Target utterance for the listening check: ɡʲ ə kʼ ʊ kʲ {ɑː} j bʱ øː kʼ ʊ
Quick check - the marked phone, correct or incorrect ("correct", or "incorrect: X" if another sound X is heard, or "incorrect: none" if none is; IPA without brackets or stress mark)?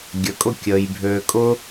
incorrect: əː